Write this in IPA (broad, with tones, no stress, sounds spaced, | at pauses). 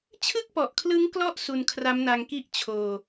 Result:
t͡ɕʰ ɯ˥˩ k̚ p ɔ˨˩ ʔ kʰ l ɯ˦˥ ŋ k l ɔ˦˥ ʔ s u˧ n kʰ r a˦˥ m n a˧ ŋ k i˥˩ ʔ t͡ɕʰ oː˧